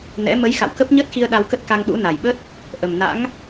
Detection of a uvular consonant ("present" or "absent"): absent